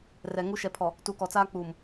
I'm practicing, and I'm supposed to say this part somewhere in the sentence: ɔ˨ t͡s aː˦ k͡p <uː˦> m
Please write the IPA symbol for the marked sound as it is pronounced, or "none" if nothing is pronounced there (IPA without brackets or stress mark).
uː˨